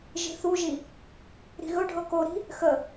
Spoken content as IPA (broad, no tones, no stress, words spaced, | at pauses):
ʒi̤θuʒi | ɾi̤ɣɵɖʱɤ koɾi̤ | xə